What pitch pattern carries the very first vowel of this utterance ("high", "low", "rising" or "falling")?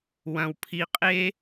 low